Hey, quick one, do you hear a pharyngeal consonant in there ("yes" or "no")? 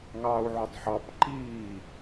yes